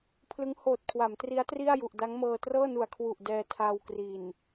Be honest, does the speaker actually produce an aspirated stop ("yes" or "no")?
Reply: yes